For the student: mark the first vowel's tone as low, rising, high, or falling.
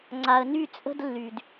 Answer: low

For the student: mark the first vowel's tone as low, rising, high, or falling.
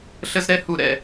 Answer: high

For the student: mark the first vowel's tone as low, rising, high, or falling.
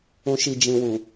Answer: low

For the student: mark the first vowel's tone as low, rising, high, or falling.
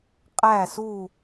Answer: falling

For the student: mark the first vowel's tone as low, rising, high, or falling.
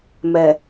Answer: low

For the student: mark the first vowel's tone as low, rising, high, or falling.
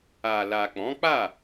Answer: low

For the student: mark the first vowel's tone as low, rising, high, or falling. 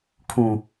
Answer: low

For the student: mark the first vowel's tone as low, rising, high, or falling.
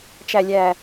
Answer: low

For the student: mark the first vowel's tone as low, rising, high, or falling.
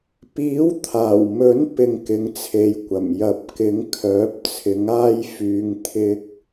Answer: rising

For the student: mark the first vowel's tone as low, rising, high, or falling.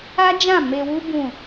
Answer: high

